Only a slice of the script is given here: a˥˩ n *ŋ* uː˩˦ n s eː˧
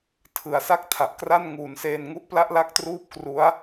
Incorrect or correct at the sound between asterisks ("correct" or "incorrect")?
correct